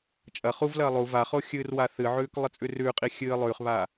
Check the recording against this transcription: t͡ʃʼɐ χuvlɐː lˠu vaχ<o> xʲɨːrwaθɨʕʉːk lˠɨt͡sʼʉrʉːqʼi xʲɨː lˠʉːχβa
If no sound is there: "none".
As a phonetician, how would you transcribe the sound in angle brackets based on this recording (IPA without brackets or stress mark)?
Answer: o